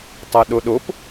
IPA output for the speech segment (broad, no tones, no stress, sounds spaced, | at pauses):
tˤ a ɗ o ɗ o p